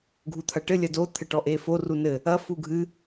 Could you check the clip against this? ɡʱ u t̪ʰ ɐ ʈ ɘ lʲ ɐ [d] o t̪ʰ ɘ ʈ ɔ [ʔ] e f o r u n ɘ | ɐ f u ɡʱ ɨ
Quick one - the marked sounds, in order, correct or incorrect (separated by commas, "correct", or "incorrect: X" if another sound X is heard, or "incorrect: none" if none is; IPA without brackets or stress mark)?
correct, correct